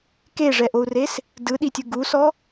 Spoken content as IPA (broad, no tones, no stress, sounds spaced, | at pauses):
k e ʐ ɛ ʔ o u̯ r e s | d ɯ ɗ i tʲ ɯ ɡ u s ɔ